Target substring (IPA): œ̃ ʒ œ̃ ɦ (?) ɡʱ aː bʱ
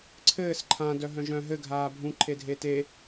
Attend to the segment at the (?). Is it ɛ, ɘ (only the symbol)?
ɘ